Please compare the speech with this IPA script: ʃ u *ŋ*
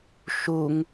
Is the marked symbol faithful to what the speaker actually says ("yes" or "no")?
yes